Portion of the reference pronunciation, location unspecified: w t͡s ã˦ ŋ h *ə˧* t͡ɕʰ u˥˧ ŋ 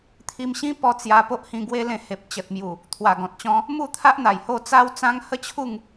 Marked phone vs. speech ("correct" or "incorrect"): incorrect